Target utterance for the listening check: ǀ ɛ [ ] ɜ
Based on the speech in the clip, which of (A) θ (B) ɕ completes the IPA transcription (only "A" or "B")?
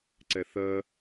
A